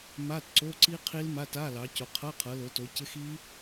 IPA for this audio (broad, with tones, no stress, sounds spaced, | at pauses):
m a˧˥˧ t ǀ o˧˥˧ ǀ i˦˥ qʰ i˦˥ l m a˧˥˧ t a˧˥˧ l ɑ˨˦ c o˨˦ qʰ ɤ˧˥˧ qʰ ɤ˨˦ l o˨˦ t o˨˦ c ɪ˧˥˧ x i˦˥